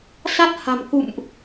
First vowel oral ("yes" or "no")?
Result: yes